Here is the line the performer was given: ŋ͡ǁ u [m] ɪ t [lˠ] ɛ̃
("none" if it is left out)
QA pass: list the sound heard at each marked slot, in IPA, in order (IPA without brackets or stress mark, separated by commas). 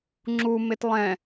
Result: m, lˠ